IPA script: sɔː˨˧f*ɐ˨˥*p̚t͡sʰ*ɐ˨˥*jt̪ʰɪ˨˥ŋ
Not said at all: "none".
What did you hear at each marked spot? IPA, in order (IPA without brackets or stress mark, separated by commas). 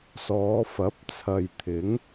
ɐ˨˥, ɐ˨